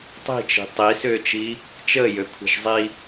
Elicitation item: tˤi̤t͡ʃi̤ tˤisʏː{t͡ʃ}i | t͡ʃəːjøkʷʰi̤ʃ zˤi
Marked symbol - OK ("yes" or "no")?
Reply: yes